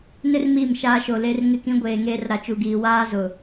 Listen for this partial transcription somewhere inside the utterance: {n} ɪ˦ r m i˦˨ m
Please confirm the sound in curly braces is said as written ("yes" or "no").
yes